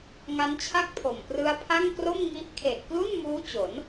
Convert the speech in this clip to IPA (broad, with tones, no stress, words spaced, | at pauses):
ŋa˦˥nt͡ɕʰa˥˩k̚pʰo˨˩m prɯ˦˥a̯pʰa˥˩ŋkro˥˩m ŋi˦˥ʔ kʰe˨˩ʔklu˥˩nmuː˦˥ t͡ɕo˩˦n